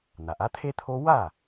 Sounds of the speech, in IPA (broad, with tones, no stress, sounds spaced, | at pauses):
n̪ a˩ ʔ a˦ t̪ʰ e˦ t̪ʰ o˦ w a˥˩